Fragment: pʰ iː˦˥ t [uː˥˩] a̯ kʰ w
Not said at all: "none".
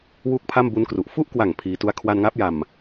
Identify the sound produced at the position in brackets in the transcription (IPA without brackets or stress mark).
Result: u˥˩